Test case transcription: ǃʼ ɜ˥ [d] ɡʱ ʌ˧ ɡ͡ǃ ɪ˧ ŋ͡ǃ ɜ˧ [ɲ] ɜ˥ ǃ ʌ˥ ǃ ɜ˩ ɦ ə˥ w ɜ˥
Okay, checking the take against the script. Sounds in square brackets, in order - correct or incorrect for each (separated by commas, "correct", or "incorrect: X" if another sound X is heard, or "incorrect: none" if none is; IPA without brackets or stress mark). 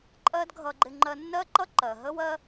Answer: correct, incorrect: nː